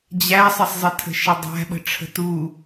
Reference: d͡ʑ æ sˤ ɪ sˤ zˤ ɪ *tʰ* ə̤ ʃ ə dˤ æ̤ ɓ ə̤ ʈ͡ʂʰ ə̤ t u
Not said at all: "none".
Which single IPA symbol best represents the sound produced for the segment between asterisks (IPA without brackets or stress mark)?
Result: tʰ